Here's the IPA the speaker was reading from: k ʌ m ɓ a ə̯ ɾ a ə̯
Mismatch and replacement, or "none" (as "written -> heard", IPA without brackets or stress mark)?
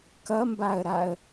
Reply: ɓ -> b